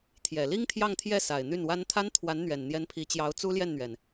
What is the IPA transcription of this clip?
t̪ʰ j ɛ˨˩ l i˥ ŋ t̪ʰ j ɑ˥˧ ŋ t̪ʰ j ɛ˥˩ s a˨˩ ɪ̯ n̪ y˥˩ n w a˥ n t̪ʰ a˥ n t̪ʰ w a˧˥ n n̪ ɥ ɛ˨˩ n n̪ j ɛ˧˥ n pʰ i˧˥ t͡ɕ j ɑ˧˥ ʊ̯ t͡s u˥ l j ɛ˥˩ n n̪ ɥ ɛ˩ n

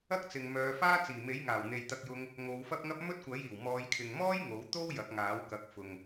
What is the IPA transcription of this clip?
ɐ˥ k̚ t͡s ɪ˨ ŋ m œː˨˧ f aː˥ t͡s iː˨˩ m e˨˥ j ŋ aː˨˩ w n̪ e˨ j t̪ ɐ˧ k̚ j ʊ˧ ŋ | ŋ o˨˧ w f ɐ˥ p̚ ŋ ɐ˥ p̚ m ɵ˥ t̚ kʷ ɐ˨˥ j iː˨˩ w m ɔː˨˧ j kʰ ɪ˨ ŋ m ɔː˥ j ŋ o˨˥ w t̪ o˥ w j ɐ˨˥ k̚ ŋ aː˨˥ w k ɐ˨˥ k̚ f ʊ˨ ŋ

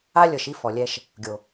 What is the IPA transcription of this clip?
a˦ lʲ ɤ˨ ʃ i˦ f ɔ˨ lʲ ɛ˦ ʃ | ɡʲ o˨

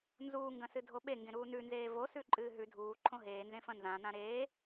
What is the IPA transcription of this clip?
n z uː ŋ ɡ ɐ̃ s ɨ dʱ o ɓ e ŋ ɡ ẽ ɾ uː n ʉ n z eː v o s ʉ ǃʼ ɨː ɦ ʉ dʱ uː ǃʰ õ ɦ eː n z ẽ f ɐ̃ n z ã n̪ ã ɾ eː

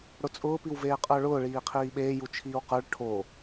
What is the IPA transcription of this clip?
ɽ ʊ t͡sʼ ʊː p i w v eː qʼ ə˞ ɭ ʊː ɭ iː qʰ iː ɓ eː j u t͡ʃʰ iː w q ə˞ ɭ ʈʰ o

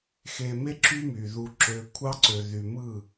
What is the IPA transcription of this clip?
x e˨ m e˦ ǁ y˦ m y˨ ð u˨ ǁ ø˨ kʷʰ ɑ˦ ǀ ø˨ ð y˨ m ɯ˦˨

